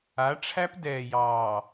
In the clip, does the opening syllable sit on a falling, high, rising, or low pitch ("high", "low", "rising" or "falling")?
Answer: rising